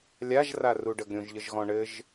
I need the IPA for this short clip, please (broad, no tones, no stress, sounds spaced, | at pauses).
lʲ a ʒ r a r u ɖ ə ɡ ɾʲ õ ʒ ʎ ə ʒ ɣ ɔ̃ ɳ ɘ ʒ